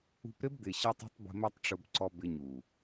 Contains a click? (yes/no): yes